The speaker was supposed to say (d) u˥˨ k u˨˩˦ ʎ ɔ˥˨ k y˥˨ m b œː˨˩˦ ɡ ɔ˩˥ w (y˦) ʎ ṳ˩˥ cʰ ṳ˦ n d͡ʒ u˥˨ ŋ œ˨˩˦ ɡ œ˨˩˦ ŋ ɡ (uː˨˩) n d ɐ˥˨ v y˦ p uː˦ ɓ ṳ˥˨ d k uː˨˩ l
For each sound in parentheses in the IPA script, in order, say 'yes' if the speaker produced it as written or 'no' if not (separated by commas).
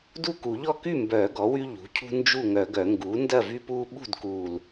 yes, yes, no